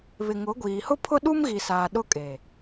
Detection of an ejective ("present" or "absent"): present